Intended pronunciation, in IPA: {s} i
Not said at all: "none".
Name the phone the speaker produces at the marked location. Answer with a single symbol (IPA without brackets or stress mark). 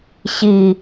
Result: ɕ